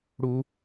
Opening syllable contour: high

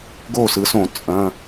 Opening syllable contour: falling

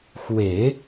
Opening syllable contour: low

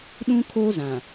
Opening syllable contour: high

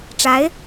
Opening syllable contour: rising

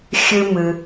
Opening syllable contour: high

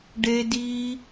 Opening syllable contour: high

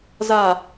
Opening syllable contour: low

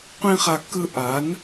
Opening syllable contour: high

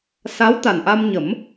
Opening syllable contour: rising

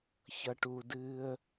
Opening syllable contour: low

